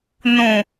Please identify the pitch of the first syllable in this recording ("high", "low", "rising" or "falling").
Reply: low